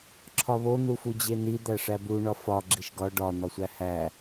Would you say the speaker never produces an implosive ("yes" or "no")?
yes